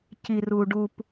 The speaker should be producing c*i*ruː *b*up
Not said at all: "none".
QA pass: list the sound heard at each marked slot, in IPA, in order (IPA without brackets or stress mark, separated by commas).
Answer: i, ɖ